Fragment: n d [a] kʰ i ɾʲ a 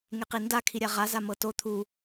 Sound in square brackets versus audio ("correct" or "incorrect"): correct